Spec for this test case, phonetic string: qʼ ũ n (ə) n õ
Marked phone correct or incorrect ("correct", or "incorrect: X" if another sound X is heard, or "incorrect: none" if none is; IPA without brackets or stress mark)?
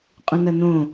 incorrect: ɐ